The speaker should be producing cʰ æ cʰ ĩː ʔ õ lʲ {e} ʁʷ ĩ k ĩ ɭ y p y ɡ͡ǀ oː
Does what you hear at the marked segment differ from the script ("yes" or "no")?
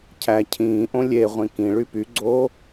no